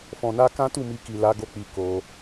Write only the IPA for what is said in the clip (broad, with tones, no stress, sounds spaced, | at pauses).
f ɔ̃˨ n a˧ k ã˦ t u˦˨ m i˧ k i˨ l a˨˦ ɡ o˧ k͡p i˧ k o˧